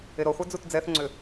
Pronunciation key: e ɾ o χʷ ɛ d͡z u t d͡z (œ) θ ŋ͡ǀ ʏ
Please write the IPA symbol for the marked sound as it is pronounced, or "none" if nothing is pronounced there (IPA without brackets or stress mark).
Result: ɛ